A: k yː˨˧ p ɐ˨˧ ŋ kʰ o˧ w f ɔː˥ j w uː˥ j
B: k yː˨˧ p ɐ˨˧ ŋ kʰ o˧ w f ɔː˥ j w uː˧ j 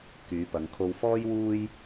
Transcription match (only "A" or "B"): A